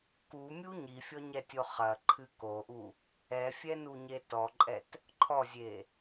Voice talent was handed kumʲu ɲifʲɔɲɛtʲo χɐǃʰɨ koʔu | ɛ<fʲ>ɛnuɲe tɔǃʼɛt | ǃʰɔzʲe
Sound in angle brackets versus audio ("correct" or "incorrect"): correct